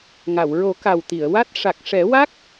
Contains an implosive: no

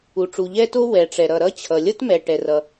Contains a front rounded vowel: no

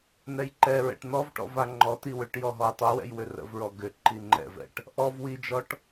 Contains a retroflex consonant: yes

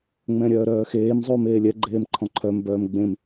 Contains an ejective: no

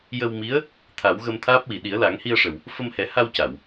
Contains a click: no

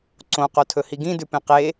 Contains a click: yes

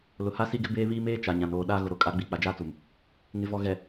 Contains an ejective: yes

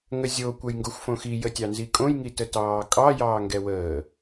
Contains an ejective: yes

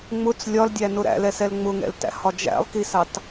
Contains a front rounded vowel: no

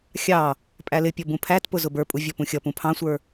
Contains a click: no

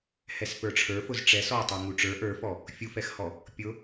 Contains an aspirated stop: yes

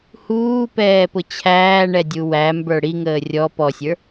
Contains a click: no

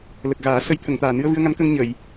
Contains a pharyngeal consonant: no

